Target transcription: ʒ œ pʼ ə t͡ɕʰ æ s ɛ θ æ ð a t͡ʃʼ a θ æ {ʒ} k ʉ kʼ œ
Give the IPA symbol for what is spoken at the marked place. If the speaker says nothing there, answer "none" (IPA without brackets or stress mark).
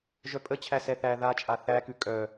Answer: none